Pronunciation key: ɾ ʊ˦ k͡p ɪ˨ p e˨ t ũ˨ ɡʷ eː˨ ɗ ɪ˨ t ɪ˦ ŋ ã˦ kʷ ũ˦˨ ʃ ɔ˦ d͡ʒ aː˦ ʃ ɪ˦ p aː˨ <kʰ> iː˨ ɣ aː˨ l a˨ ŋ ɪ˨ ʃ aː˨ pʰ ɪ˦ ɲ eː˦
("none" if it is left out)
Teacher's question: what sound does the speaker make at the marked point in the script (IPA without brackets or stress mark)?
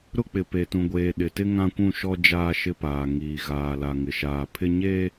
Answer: ŋ